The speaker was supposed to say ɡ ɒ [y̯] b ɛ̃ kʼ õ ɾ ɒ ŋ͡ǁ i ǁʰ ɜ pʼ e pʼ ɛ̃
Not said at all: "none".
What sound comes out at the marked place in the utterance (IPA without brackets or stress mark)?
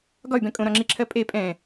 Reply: y̯